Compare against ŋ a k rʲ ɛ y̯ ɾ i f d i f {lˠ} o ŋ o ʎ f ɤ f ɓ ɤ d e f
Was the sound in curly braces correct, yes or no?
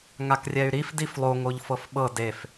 yes